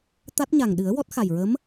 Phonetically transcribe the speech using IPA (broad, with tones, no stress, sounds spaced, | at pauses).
t̪ a˦˥ t̚ ɲ a˨˩ ŋ ɗ ɨ˨˩˦ ə̯ w ɔ˦˥ t̚ x a˨˩ j ɹ ə˧˥ m